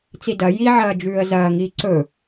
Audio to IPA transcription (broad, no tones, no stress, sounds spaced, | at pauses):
t͡s i d ɐ j i ʕ ɐː d͡ʒ ʉː ə̯ z ɐː ŋ iː ǀ ɵ